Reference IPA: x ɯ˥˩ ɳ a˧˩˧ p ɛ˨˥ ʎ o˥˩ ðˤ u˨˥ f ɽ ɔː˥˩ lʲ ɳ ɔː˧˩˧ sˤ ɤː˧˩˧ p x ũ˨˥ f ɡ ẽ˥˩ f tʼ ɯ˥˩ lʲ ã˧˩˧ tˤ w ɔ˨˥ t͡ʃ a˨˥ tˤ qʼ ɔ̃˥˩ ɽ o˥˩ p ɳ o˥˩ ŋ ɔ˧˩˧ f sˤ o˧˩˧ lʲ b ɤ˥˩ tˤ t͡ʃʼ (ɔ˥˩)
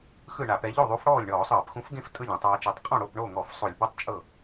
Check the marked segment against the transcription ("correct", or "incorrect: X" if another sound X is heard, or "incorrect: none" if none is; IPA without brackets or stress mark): incorrect: ɤ˥˩